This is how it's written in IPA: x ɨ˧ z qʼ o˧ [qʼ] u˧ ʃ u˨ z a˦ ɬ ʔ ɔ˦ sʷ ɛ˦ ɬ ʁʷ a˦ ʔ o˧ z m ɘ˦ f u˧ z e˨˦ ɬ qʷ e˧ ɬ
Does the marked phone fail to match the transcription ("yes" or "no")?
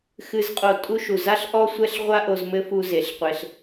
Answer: yes